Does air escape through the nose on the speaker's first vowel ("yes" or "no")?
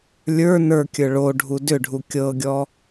no